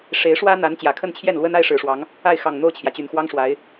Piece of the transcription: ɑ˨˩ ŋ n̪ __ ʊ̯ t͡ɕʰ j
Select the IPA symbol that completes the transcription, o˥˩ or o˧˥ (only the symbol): o˥˩